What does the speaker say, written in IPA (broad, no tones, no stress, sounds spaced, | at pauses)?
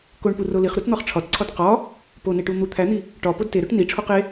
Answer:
k o ɳ p u r o l i χ ɾ u t n̪ ɒ χ ʈ͡ʂʰ ɒ t ǀʰ ɒ t q ɒ | p o n e ʈ u n̪ u t̪ʰ æ n̪ i | ʈ ɒ p o d t e ɾ o ʈ n i ʈ͡ʂʰ o q e